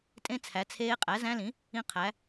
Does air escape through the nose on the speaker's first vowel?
yes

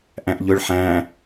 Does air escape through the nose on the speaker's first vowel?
yes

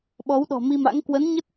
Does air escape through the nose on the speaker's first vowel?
no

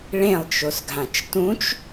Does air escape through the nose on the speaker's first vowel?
yes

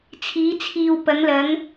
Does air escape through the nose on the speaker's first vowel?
no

